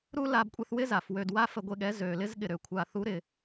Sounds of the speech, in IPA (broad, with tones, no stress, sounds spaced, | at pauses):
ɾ u˦ l a˧ b kʷʼ ɛ˧ θ w ɪ˦ z a˨ f w ø˧ d w a˦ f ə˧ ɡʷ e˧ ɠ ɛ˨˦ z ø˨ l ɪ˦ z ɠ ɪ˧ ɾ ø˨ kʷʰ a˧ θ u˨˦ ɾ ɪ˨